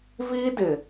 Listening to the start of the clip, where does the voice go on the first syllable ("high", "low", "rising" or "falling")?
high